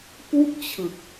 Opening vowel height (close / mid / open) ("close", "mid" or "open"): close